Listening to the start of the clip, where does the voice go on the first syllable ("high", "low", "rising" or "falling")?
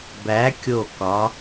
rising